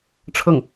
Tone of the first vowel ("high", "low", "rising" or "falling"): falling